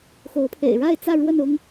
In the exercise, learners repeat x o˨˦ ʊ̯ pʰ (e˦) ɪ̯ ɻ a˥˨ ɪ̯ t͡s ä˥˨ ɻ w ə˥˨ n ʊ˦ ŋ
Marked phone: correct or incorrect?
incorrect